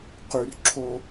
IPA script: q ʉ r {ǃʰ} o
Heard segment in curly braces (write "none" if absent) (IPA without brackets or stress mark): ǁʰ